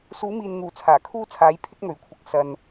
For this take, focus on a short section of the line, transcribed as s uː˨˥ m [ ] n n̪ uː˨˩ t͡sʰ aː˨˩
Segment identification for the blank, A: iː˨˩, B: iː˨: B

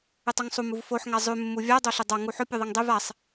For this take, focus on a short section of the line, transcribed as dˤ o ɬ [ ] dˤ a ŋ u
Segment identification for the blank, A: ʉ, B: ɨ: B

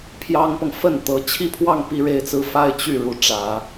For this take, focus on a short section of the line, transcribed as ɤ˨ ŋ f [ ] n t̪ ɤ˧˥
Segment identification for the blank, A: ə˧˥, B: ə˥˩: B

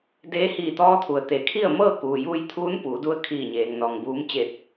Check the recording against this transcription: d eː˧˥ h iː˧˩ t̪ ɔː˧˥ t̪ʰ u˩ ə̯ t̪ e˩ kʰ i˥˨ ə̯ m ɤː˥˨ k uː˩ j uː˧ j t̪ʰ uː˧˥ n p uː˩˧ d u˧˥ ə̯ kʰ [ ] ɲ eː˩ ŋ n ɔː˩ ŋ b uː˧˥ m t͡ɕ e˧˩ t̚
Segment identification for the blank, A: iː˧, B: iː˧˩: B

